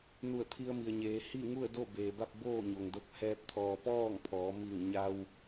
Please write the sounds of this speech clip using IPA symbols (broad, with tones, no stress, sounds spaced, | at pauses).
n u˧˩ ə̯ t̪ʰ i˧ ə̯ m i˩ ə̯ ɲ eː˩˧ h i˥˨ ŋ u˥˨ ə̯ d o˥˨ b eː˩ b a˥˨ p̚ b oː˥˨ ɲ o˩ ŋ d o˧ k̚ h ɛː˧ p̚ t̪ʰ ɔː˩ p ɔː˥˨ ŋ pʰ ɔː˩˧ m i˧˩ ŋ ɲ a˧ w